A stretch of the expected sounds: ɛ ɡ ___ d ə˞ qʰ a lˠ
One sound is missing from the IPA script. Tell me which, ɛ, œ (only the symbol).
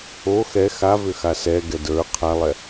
ɛ